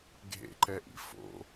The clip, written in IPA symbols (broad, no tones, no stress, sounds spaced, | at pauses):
ɡʱ ḛ ǃ ɛ ʔ ḭ f o̰